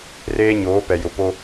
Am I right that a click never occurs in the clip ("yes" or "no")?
yes